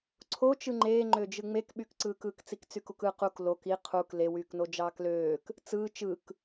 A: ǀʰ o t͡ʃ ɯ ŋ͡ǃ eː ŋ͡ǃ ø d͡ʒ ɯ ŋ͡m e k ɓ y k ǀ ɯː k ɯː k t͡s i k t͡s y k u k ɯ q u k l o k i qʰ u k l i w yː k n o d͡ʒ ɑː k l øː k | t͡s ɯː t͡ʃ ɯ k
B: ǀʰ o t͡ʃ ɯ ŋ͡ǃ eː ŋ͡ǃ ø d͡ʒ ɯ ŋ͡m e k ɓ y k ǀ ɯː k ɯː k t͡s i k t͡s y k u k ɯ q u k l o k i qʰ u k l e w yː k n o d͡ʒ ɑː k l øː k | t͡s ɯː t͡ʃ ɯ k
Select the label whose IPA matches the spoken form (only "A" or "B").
B